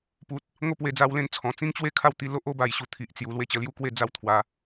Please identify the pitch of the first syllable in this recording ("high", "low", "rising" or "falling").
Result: low